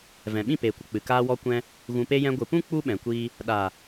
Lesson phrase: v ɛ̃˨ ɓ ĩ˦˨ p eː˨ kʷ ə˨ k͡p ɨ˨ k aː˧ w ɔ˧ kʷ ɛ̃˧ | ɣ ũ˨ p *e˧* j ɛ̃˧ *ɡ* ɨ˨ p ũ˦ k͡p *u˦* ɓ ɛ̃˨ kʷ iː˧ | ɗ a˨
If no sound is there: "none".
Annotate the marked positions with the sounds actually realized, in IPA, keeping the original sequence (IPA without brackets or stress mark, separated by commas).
e˧, ɡʷ, u˦